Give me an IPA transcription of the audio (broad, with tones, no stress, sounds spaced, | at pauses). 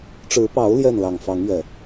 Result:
ʈ͡ʂ ɻ̩˨˦ p ɑ˨˦ ʊ̯ l j ɛ˥˨ n l ɑ˨˩ ŋ f ɑ˨˦ ŋ ɥ ɛ˨˩